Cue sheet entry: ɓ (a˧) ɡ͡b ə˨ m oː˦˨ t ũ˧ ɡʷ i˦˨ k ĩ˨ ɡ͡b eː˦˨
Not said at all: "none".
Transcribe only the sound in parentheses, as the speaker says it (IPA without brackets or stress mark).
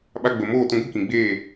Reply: a˧